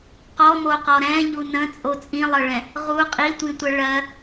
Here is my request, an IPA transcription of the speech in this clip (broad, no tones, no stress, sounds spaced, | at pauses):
q ɔ m o q ɔ ɾ ɛ̃ ʎ u n ə̃ t͡sʼ o t͡sʼ ĩ lˠ ɤ ɭ ɛ̃ | ʁ u qʼ i tʷ ĩ tʷ ə ɭ ɜ